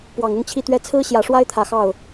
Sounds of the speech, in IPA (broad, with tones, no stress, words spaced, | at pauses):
pwɑ˨˩ŋʊ˥˧ŋt͡ɕʰi˥˩t̪ɥɛ˥ t͡sʰɹ̩˥ɕjä˨˩ʂwa˥ɪ̯ t̪ʰä˨˩xɑ˥˩ʊ̯